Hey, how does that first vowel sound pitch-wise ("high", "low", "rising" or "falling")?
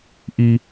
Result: high